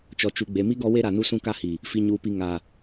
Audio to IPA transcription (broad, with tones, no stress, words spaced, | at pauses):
t͡ʃɔ˨t͡ʃu˨ɡ͡be˨mi˦ ɡɔ˦we˦ɾa˨nu˦ sũ˦ka˦hi˨ | fi˨ɲuː˨pi˨ ŋa˨